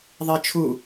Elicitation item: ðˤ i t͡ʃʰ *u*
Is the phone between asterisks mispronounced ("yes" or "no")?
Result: no